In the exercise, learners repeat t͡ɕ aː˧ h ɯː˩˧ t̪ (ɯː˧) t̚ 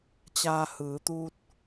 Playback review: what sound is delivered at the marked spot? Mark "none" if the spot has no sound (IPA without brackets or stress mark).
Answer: uː˧